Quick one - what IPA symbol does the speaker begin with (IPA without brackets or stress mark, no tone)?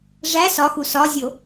ʐ